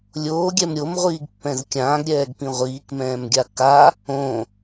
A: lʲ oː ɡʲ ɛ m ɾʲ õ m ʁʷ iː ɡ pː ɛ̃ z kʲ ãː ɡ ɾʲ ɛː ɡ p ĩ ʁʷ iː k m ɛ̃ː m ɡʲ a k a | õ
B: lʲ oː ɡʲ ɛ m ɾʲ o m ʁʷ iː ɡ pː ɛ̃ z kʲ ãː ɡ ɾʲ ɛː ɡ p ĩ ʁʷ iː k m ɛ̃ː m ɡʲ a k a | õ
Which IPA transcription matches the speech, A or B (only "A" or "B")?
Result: B